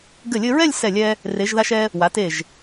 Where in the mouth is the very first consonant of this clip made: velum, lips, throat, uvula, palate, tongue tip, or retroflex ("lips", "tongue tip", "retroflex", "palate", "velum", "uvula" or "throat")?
velum